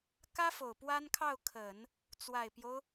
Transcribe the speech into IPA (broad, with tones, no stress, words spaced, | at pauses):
kä˥fo˨˩ʊ̯ pwa˥nkʰɑ˥˩ʊ̯kʰə˨˩˦n | t͡swa˨˩ɪ̯pjo˦ʊ̯